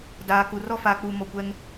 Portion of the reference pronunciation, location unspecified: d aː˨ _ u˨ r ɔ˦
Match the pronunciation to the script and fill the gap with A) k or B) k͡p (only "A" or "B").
A